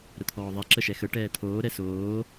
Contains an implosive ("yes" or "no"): no